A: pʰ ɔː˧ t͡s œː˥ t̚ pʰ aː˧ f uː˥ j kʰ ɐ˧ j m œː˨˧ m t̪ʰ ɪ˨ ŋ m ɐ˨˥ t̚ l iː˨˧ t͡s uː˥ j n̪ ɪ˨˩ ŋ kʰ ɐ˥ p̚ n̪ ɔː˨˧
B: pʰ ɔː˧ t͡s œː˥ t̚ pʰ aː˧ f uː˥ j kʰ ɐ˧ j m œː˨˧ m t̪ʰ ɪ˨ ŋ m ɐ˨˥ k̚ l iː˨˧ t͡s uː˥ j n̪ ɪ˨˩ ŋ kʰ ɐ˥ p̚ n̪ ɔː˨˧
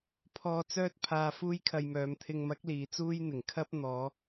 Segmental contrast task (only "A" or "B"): B